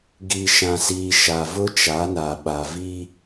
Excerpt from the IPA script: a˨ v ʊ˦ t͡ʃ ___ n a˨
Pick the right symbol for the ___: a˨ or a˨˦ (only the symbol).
a˨˦